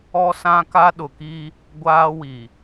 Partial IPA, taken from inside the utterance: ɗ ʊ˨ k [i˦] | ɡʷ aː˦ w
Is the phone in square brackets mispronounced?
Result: no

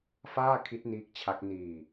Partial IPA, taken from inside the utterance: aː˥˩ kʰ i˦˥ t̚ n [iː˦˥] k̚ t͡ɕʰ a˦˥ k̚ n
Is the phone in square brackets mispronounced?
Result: no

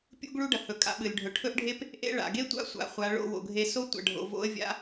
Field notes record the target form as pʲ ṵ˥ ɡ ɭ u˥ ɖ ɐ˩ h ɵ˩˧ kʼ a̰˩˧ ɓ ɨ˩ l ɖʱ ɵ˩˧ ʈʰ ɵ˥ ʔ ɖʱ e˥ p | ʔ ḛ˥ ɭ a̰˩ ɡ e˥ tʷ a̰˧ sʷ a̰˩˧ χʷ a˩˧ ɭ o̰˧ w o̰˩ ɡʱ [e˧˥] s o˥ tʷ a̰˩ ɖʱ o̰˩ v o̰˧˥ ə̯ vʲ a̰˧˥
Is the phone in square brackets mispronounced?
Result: yes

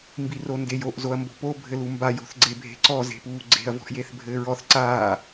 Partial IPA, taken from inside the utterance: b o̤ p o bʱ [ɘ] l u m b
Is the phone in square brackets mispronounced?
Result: no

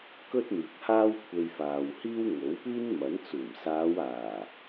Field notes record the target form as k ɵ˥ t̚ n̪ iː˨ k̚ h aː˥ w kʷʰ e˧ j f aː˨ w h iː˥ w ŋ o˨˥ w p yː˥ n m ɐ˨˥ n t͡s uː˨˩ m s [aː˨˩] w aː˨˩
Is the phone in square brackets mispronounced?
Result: yes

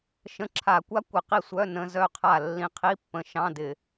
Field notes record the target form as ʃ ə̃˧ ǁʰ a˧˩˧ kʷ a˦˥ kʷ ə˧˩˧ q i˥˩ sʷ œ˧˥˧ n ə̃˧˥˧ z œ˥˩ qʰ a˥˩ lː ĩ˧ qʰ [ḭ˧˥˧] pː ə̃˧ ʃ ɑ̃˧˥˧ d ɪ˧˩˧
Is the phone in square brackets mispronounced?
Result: yes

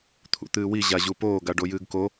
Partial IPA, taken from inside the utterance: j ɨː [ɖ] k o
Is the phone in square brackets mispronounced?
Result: yes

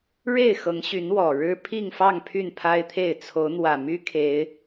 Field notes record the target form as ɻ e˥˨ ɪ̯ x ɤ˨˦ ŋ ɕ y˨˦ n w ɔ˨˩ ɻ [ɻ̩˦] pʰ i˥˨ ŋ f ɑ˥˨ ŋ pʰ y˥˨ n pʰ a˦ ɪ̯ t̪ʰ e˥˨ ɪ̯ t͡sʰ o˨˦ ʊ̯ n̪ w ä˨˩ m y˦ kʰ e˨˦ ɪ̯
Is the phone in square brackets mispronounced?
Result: no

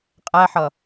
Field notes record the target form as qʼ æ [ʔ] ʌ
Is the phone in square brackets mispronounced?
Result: yes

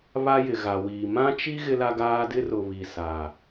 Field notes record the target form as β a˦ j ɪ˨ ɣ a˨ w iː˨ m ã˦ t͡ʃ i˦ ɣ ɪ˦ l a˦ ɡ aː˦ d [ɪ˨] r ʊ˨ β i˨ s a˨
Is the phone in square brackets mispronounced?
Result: yes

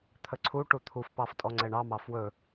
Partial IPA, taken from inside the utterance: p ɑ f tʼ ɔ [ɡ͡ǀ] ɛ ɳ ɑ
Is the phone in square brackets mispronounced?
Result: yes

